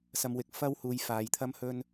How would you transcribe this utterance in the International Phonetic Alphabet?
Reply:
s ɐ˨ m w ɪ˨ k̚ f ɐ˥ w h uː˨˧ j f aː˨ j t̪ʰ ɐ˥ m h ɵ˥ n

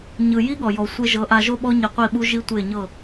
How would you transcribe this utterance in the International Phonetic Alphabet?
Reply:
ɲ ɯ˨ j i˦ ɠ ɔ˨ j ɔ˨ sʷ e˧ ʒ ɤ˨˦ ʔ a˧ ʒ o˦ ɓ ɔ˦ ɲ i˧ qʷ i˦˨ ɓ u˦ ʒ i˦ tʷ e˦˨ ɲ ɤ˦˨

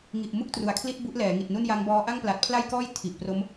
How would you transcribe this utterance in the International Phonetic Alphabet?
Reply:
ŋ i˨˩ ʔ m u˥˩ k̚ t r u˩˦ a̯ kʰ l i˦˥ t̚ b u˦˥ ʔ l ɛː˩˦ ŋ i˨˩ t̚ n u˥˩ n j a˦˥ ŋ b ɔː˦˥ ʔ a˥˩ ŋ p l a˨˩ t̚ pʰ l a˥˩ j k ɔː˥˩ j tʰ i˨˩ ʔ p r o˦˥ m

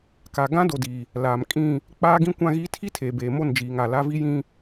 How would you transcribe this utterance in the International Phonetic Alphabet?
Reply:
k a˨ ɡ ã˦ d o˨ d iː˨ | l aː˨ m kʼ ĩ˦˨ | k͡p aː˦ ɡ ĩ˦ kʷ ã˦ ɣ iː˦ tʰ i˦ tʰ eː˨ b eː˨ m o˦˨ n d͡ʒ iː˨ ŋ a˨ l a˦ v i˦ j ĩ˦

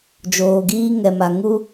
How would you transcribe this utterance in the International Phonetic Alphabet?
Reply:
d͡ʒ oː˨ ɡ iː˧ ŋ ɛ˨ m a˨ ŋ u˧

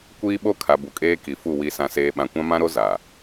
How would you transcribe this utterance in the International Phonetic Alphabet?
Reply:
kʷ iː˦ ɓ o˦ kʰ a˨ b u˨ kʼ eː˦ k i˨ f u˦˨ w i˨ s ã˨ s eː˨ ɓ ã˨ kʷ ã˦ m ã˦ ɾ o˦ z a˨

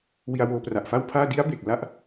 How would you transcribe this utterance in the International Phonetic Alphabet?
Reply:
w i˧ a̯ w oː˧ p r a˨˩ ʔ f a˥˩ w pʰ aː˥˩ d i˦˥ a̯ b e˨˩ k̚ l a˥˩ ʔ

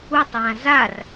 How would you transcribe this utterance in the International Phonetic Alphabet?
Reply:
u tˤ j ã z a r

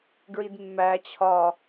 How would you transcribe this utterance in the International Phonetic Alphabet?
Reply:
ɡ ɹ i d mː æ t͡ɕʰ ɒ

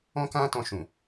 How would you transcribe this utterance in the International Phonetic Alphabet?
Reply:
ɔ̃˦ k ã˦ t ɔ̃˧ ʃ ũ˨

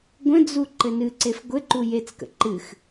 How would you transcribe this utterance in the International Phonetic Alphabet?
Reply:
ɡʷ ə̃ d͡z u ǃ ɘ n ɨ ǀ e f ɡʷ ɘ ǃ u j e t͡s k ə̰ ǃ ɨ x

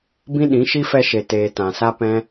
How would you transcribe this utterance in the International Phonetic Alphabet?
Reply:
b ĩ˦ ɗ ĩ˨˦ ʃ i˦ f ɛ˧ ʃ e˨ t eː˨ t ã˨ s a˦ p ɛ̃˦

